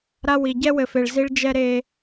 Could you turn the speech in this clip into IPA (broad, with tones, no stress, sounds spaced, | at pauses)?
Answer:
ɾ a˦ w i˨ ɟ ɛ˦ w ɘ˨ f e˨ ɭ z i˦ ɭ d͡ʒ ɛ˦ ɾ e˦